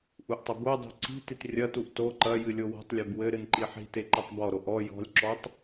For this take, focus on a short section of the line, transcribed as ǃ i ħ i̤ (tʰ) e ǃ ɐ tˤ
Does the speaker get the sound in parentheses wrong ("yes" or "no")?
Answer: yes